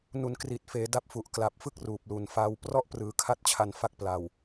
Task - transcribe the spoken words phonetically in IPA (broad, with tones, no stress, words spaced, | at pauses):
nu˨˩nkri˨˩t̚ feː˩˦da˦˥p̚fu˨˩ʔ kla˨˩p̚fɯ˥˩k̚ ruː˨˩p̚lu˨˩nfa˦˥w prɔ˥˩ʔprɯː˩˦kʰa˥˩t̚t͡ɕʰa˧n fa˥˩k̚pla˨˩w